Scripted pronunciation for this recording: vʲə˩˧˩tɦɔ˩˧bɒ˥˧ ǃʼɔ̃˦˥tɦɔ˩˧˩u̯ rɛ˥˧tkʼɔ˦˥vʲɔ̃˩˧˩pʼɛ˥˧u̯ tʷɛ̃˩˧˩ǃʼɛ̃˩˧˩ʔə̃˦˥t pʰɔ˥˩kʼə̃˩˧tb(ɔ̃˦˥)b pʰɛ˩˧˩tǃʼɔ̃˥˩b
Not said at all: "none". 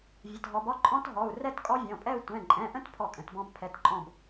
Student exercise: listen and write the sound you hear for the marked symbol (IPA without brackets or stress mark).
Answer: ɔ̃˦˥